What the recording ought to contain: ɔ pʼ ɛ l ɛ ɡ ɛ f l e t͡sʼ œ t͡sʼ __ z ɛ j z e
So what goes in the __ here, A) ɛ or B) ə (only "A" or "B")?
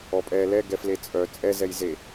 A